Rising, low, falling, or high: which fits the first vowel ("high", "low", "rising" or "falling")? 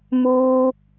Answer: high